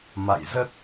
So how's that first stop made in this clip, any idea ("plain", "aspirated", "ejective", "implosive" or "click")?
plain